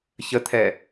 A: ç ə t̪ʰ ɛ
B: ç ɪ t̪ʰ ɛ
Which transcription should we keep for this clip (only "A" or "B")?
A